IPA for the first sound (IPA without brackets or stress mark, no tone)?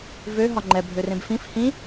v